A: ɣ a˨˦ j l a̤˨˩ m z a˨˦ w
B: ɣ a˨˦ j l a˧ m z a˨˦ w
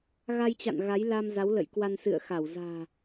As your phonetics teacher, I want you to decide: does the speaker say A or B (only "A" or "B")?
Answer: B